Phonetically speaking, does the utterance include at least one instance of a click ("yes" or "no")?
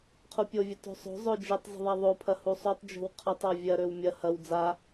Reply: no